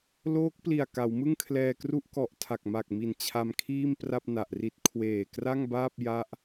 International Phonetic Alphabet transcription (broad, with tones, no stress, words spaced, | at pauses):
loː˦˥k̚pli˨˩a̯ ka˩˦wmɯ˥˩ŋ kʰlɛː˧kru˥˩ʔ kɔ˨˩ʔ tʰa˨˩k̚ma˨˩k̚mi˨˩n t͡ɕʰa˧mkʰiː˥˩m pra˥˩p̚na˨˩ʔri˦˥t̚ kʰweː˨˩ kra˥˩ŋbaː˥˩p̚ ja˦˥ʔ